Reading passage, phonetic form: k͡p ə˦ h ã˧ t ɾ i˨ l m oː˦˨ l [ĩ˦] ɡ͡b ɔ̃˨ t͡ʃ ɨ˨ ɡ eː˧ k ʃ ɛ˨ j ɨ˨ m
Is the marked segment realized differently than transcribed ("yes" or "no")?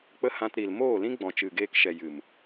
no